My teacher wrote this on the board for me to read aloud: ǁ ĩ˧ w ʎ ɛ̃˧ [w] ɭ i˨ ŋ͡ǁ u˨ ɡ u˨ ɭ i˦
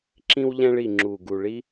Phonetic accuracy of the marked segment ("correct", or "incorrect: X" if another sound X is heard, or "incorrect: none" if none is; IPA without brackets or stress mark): incorrect: none